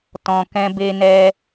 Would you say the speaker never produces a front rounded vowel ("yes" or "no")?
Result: yes